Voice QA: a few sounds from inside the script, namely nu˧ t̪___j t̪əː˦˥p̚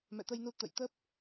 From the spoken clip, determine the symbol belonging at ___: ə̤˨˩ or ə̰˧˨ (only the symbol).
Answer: ə̰˧˨